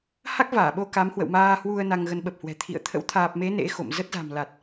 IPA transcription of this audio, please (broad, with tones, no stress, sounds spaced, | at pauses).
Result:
h a˦˥ k̚ v aː˧˩ ɓ o˧ k a˨˦ m h w ə̰˧˨ w m aː˧ h w u˧ ə̯ n a˧ ŋ ɣ ə˧ n ɓ ə˨˩ p̚ h w ɛ̤˨˩ t̪ʰ ḭ˧˨ ə̯ t̪ʰ ə̰˧˥ w t̪ʰ aː˨˩ p̚ m e˨˦ n ḛ˧˥ x o̰˧˨ m z ə˦˥ t̚ z a̤˨˩ m l a˨˩ t̚